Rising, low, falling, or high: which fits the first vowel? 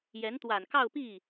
rising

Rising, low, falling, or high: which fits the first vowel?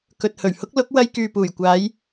low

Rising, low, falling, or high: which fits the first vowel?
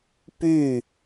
falling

